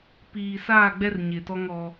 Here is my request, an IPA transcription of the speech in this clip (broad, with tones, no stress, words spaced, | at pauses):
piː˨saː˦˨ɡ͡bɛ˦r ɲɪ˨tɔ˦ŋ ɔ˦